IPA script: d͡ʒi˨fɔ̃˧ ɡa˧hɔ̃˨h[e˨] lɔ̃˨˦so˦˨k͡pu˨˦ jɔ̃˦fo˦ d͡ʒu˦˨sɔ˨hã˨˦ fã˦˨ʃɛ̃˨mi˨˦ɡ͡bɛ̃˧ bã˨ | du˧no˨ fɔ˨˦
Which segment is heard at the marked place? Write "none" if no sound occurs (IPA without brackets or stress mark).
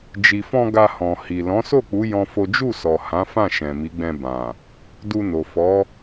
i˨